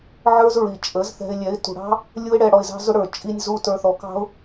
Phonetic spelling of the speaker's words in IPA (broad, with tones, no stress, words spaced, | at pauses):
ʕə˞˦zɹi˨t͡ʃʼə˨˦z θɛ̤˧ɪ̯lʲɛ˨˦ɪ̯ tṳ˨ɽɑ̤˦ | lʲu˦ɪ̯ɽɛ˧ ɽɔ˧ɪ̯zɑ̤˦zʊ˦ɽə˞˨ t͡ʃʼi˧nʲzu˧ tə˞˧θɔ˨˦kɑ̤˦ʊ̯